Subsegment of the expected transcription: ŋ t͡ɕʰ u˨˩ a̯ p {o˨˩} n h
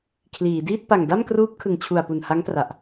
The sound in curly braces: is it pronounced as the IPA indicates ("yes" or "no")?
no